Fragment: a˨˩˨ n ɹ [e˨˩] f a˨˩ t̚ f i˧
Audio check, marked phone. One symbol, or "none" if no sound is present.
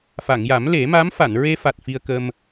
e˧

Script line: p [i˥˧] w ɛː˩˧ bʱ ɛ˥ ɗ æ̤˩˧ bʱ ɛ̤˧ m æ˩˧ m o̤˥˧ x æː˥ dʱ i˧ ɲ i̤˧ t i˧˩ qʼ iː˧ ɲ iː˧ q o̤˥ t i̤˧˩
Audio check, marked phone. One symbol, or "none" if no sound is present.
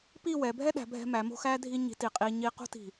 i˥˧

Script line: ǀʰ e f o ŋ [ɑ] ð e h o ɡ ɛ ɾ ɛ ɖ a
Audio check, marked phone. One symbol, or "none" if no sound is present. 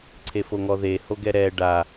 ɔ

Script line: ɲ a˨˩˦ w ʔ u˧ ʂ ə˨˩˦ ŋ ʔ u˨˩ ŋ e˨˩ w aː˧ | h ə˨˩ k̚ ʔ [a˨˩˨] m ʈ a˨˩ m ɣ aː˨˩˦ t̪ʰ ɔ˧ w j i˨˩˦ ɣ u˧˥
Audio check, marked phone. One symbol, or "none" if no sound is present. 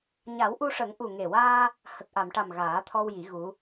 a˨˩˨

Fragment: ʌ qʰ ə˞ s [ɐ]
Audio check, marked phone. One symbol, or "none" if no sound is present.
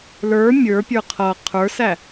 æ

